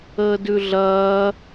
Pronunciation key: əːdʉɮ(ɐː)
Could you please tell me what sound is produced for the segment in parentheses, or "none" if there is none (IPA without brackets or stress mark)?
ɐː